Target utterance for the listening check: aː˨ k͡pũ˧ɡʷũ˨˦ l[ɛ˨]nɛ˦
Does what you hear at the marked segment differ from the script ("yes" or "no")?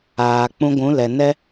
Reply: no